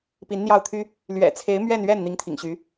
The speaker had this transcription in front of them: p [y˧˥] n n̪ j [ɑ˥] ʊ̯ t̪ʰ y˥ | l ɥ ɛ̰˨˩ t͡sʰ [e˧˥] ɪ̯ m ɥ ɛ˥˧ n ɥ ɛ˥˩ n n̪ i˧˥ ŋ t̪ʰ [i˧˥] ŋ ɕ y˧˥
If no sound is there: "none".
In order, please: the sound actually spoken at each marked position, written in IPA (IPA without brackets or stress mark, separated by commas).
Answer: i˧˥, ɑ˥˩, e˧˥, ḭ˨˩